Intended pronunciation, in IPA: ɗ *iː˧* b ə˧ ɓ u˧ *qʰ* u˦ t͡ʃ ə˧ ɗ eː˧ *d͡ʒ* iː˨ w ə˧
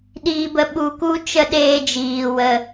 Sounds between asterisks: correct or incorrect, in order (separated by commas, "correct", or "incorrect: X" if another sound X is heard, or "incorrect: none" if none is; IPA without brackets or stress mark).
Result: correct, incorrect: k, correct